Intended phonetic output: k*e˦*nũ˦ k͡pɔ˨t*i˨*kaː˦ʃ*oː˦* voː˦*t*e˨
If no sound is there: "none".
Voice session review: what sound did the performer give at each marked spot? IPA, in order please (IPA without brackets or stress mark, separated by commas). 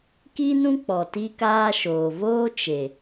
i˦, i˦, oː˨, t͡ʃ